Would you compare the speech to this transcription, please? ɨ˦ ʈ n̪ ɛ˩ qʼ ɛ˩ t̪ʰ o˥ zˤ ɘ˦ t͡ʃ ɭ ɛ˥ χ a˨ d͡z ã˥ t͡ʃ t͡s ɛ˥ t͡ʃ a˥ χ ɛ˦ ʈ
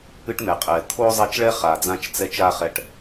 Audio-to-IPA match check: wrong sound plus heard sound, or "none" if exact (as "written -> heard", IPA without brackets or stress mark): ɘ˦ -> ɛ˦